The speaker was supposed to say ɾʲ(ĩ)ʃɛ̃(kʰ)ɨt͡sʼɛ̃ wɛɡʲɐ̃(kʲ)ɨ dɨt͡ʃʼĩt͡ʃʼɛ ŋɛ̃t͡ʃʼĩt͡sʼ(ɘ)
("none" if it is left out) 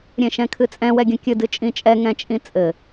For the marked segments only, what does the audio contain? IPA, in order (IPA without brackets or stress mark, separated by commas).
ẽ, kʰ, kʲ, ɘ